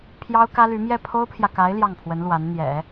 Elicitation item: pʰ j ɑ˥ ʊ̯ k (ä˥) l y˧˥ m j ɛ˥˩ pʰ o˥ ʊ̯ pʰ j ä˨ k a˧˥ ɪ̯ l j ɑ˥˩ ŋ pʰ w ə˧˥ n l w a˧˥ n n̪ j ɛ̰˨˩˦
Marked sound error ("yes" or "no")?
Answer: no